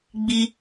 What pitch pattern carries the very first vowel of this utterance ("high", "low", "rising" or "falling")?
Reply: high